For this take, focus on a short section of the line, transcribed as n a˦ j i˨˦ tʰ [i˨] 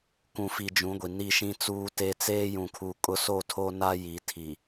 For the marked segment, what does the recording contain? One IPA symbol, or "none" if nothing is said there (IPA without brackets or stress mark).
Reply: i˨